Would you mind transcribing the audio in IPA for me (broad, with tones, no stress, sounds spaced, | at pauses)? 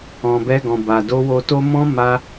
ɔ̃˨ b ɛ˧ ɡ ɔ̃˨ b a˨ d o˧ w o˧ t o˦ m ɔ̃˦ m a˧